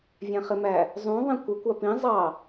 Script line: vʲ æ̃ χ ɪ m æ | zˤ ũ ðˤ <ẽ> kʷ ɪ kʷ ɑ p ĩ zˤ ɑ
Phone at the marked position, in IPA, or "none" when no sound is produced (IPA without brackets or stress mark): ĩ